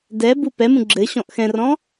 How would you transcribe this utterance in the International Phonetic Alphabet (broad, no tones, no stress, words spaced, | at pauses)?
dɛbu pɛmũ ɡ͡ǁɘ ɕɔ̃ʔxɛ̃rɔ̃